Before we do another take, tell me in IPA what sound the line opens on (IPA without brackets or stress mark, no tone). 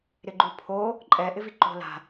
ɾ